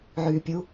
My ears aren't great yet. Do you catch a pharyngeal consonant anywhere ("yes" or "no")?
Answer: yes